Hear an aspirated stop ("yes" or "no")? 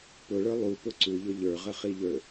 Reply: no